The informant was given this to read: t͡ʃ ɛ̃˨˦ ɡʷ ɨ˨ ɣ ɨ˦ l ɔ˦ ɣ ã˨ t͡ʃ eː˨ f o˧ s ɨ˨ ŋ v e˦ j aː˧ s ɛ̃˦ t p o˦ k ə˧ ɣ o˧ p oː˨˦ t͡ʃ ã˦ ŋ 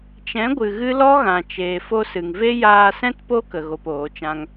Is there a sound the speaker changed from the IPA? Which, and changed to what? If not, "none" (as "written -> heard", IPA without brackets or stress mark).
none